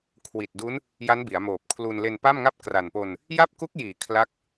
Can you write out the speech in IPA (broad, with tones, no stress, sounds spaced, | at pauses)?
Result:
kʰ w i˨˩ t̚ d u˦˥ n | j a˦˥ n b i˩˦ a̯ m oː˨˩ p̚ kʰ l u˧ n l e˧ n p a˥˩ m ŋ a˥˩ p̚ k r a˨˩ n p o˧ n | j a˥˩ p̚ k u˦˥ k̚ j iː˩˦ kʰ l a˦˥ k̚